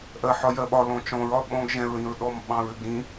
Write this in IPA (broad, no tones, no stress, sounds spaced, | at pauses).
ʔ ɜ ħ ɒ j ɜ ɓ ɒ l ɔ̃ t͡ʃ ɔ̃ ɹ ɒ ɓ ɔ̃ ɡ ʒ ɛ̃ ɹ ĩ ɹ ɗ ɔ m ɓ ɑ̃ ɹ ɘ ɡ ɾ ĩ